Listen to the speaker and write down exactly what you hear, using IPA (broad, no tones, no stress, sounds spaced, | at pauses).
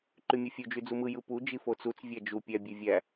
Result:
ǃ y mʲ ɯ fʲ u d͡ʒ y d͡z u m ɯ j ɯ p u d͡ʒ i f o t͡s u t͡s vʲ æ d͡ʒ u pʲ æ bʲ e vʲ æ